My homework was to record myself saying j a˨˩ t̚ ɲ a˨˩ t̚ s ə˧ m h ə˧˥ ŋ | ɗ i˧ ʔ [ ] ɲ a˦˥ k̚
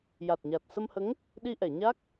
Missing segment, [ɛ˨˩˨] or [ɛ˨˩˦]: ɛ˨˩˨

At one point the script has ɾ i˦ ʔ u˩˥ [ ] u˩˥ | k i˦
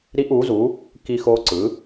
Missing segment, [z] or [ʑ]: z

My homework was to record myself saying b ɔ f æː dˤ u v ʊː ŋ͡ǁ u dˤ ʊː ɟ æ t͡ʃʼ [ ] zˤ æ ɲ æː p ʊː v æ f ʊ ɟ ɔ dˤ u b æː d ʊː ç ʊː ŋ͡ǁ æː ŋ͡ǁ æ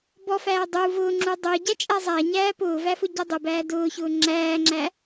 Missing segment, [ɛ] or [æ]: æ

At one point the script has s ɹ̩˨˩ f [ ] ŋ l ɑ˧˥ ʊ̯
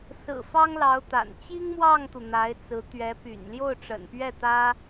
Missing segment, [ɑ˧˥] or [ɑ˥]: ɑ˥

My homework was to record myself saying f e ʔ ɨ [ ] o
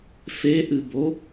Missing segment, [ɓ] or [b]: b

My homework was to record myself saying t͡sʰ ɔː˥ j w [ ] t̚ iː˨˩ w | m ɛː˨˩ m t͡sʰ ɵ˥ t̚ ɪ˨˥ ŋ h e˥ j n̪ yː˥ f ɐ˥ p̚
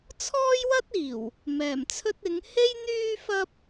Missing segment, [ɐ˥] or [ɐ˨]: ɐ˥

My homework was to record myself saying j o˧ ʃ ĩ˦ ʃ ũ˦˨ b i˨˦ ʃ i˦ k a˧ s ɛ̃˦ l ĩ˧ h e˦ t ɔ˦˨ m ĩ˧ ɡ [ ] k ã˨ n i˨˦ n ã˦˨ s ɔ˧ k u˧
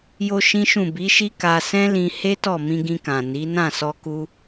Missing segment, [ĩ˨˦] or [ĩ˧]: ĩ˧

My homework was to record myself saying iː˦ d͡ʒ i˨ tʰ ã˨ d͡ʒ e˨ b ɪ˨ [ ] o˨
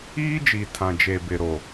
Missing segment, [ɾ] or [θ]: ɾ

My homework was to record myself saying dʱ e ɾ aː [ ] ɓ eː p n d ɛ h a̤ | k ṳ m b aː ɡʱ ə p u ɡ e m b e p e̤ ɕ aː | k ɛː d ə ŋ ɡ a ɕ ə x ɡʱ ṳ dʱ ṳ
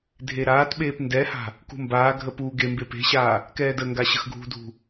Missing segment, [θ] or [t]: t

